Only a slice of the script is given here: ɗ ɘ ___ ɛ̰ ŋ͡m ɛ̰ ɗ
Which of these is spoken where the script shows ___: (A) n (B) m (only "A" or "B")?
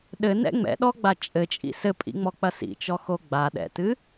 A